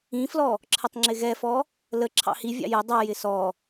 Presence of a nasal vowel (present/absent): present